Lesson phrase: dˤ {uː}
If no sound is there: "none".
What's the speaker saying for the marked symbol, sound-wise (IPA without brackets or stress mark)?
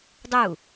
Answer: u